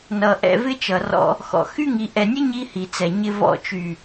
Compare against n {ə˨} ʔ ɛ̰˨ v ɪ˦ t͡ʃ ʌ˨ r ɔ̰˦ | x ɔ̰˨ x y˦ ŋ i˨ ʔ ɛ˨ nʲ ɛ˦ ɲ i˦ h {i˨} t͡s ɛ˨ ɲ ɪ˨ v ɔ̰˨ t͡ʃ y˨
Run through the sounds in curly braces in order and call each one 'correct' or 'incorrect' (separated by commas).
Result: incorrect, correct